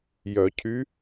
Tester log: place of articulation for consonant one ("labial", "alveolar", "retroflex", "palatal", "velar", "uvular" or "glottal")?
palatal